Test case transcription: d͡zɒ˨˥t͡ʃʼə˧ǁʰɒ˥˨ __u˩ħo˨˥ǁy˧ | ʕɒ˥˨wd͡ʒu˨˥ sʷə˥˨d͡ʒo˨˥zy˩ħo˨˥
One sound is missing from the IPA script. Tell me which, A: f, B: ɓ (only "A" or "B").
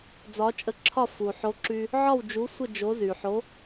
A